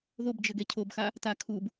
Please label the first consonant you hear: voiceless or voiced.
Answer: voiced